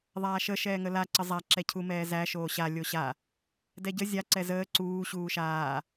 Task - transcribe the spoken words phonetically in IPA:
ðˤ aː ʃ ə ʃ ɛː ŋ ə l a ǀ ə zˤ a ǁ ɛ cʰ u m ɛː z æ ʃ oː ɕ a lʲ o ɕ a | d ɛ ɟ ə zʲ a ǀ ɛ z əː ǀ uː ɕ uː ʃ aː

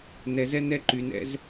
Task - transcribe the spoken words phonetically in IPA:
n ɛ˨ z ɛ˦ n ɛ˦ ǃ y˨ n ɛ̰˦ z

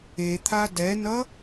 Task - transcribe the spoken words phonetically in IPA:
e t̪ʰ a d ɛ n ʌ

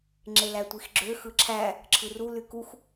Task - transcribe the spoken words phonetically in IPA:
ŋ͡ǁ e l æ tʷ i x ɡ͡ǁ ø x ɯ ǁʰ æ | ǁʰ ɯ r u l y k u x

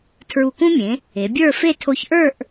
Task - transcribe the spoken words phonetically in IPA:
tʰ ɹ u˧˩ k ũ˥ mʲ ẽ˩˧ | e˩˧ bʲ ə˞˥˧ f e˥˧ tʰ o˧ ç ʔ ə˞˥˧ ʔ

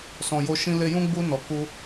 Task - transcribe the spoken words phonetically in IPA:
s ɔ̃˨ j o˧ ʃ ĩ˧ l e˧ j ũ˦ ɡ͡b u˧ n ɔ˨ k u˧

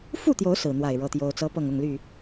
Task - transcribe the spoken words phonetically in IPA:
f u˥˨ t̪ j o˨˦ ʊ̯ s ɹ̩˨˩ n̪ w a˥˨ ɪ̯ ɻ ɤ˦ t̪ j o˦ ʊ̯ t͡s ɤ˦ p ɤ˥˨ ŋ ʊ˥˨ ŋ l y˥˨

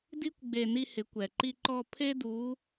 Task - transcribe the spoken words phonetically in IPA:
d i˥ kʷ ɡ͡b e˧ n i˧ h ɪ˩˧ kʷ ɛ˩ ǃ i˧ ǃ ɔ˧ pʰ e˥ d u˧˥

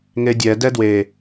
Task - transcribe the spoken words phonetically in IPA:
ŋ e dʲ ɛ d ɛ d w e

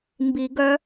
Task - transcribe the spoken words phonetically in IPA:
m b i˨˩˦ ɡ œ˧˥

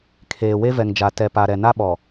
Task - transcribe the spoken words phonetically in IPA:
kʰ eː˨ w e˦ v ɛ˨ ŋ d͡ʒ a˨ t ɛ˨ p a˨ ɾ ɛ˨ n a˦ ɓ ɔ˨

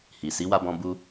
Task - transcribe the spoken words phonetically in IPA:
h i˨ s i˨˦ w a˧ b ɔ̃˧ b u˧

